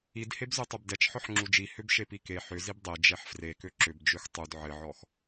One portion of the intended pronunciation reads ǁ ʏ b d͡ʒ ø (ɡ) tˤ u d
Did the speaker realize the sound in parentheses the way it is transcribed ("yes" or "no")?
no